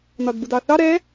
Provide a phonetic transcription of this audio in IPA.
n ɒ d b u d ɑ θ ɑ ɾ ɛ

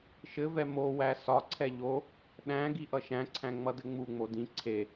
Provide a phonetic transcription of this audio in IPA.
ʃ ɘ v ɛ m o w æ s ɒ ǀʰ ɛ ʎ o | ɗ æ̃ ɡ i ʔ ʌ ʃ æ̃ ǀʰ æ̃ ŋ͡m ʌ d ɘ ŋ͡m u ŋ͡m o d ĩ ǀʰ e

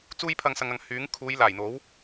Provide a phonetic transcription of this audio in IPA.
t͡s uː˥ j pʰ ɐ˧ ŋ s ɐ˨ ŋ ɐ˨ ŋ h yː˨˥ ŋ kʰ uː˨˧ j l aː˨˩ j n̪ o˨˥ w

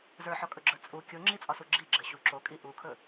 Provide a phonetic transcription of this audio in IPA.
z ə˞ ħ ɒ kʼ ɵ ɡ͡ǁ ə˞ t͡sʼ u kʲ o ŋ͡ǁ i t͡sʼ ɒ s u ɡ͡ǁ i ɡ͡ǁ ɘ ɕ u ǁ o kʼ i ʔ u kʰ ɵ

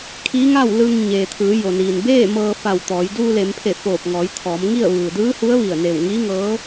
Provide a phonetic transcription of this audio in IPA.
kʰ iː˧˥ ŋ a˥˨ w l ɯː˧ ŋ ɲ eː˩ t̪ʰ ɯː˩˧ j o˩ n iː˩ n b eː˥˨ m ɤː˧ f a˧˩ w t̪ ɔː˩˧ j d uː˧ l e˩˧ m pʰ e˧˩ f oː˧˩ p̚ ŋ ɔː˩˧ j t̪ʰ ɔː˩˧ m ŋ i˥˨ ə̯ ʋ ɯː˩ d ɯː˧˥ h u˧˥ ə̯ ʋ i˧˩ ə̯ n e˧˩ w ŋ iː˧˥ ŋ ɤː˧˥

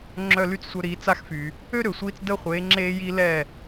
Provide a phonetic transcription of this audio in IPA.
ŋ͡ǁ œ˥˩ l y˥ t͡s sʷ œ˧ ɾ iː˩˥ t͡s a˧ x f y˩ | ø˥ ɾ ø˩ sʷ iː˧ t͡s d ə˥˩ χʷ eː˩˥ ŋ͡ǁ eː˧ j i˧ l ɛ˥˩

